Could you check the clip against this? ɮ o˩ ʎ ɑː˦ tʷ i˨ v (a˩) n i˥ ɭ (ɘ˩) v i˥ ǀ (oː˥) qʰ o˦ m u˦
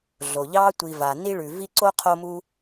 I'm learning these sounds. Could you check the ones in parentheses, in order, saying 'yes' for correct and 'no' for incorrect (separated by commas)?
yes, no, no